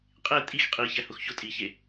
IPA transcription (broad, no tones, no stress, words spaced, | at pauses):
qʼe tʼix qʼiçæhʊx çʊ tʼiçe